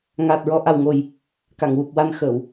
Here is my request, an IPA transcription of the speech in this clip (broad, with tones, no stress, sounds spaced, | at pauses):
ŋ aː˨˩ t̚ ɹ ɔ˧ ʔ a˨˩ w ŋ o˨˩ j | k a˨˩˨ ŋ w u˨˩ p̚ w a˧ n x əː˨˩˨ w